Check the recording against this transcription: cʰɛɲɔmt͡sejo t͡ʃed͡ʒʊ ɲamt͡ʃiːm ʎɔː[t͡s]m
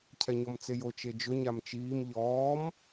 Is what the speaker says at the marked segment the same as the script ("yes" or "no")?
no